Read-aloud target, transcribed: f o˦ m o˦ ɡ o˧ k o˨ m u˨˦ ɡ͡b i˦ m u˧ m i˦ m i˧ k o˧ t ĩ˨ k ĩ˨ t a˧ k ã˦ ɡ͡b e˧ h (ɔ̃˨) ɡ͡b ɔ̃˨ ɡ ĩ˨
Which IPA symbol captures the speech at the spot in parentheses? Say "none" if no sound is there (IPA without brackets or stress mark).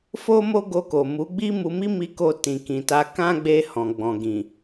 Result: ɔ̃˨